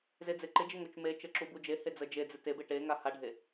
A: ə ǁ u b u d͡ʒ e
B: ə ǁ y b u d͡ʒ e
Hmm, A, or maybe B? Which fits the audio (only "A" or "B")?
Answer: A